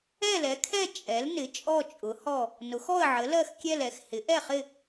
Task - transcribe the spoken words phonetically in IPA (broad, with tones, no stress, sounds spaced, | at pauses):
ɛ˥˨ l ɛ˩˥ kʰ ɛ˥˨ t͡ʃʼ ɛ˩˥ l n ɪ˩˥ t͡ʃʼ ɔ˥˨ t͡ʃʼ ʊ˩˥ h ɔ˥˨ | n ʊ˩˥ x ɔ˥˨ ə̯ ʕ ə˩˥ l ɜ˥˨ x kʲ ɛ˥˨ l ɛ˩˥ x h ɪ˩˥ ʔ ɛ˥˨ χ ɪ˥˨